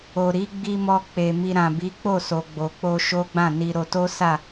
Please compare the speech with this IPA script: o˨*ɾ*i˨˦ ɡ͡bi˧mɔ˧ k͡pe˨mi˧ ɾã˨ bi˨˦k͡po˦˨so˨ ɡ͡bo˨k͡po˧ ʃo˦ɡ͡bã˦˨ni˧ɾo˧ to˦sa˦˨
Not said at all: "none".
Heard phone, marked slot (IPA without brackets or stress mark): ɾ